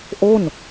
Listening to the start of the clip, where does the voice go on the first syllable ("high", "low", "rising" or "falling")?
falling